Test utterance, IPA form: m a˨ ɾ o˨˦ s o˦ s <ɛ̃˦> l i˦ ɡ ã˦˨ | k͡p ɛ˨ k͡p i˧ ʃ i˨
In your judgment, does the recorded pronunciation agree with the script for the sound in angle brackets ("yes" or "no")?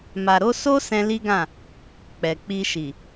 yes